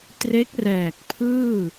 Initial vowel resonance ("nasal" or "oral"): oral